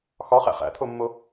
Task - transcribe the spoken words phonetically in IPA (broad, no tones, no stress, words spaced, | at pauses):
xɒχæ̰ χæ̰t̪ʰomːo